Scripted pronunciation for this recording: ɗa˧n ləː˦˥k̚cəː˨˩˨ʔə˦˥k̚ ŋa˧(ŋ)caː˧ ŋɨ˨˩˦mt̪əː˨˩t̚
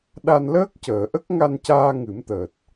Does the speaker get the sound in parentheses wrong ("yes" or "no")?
yes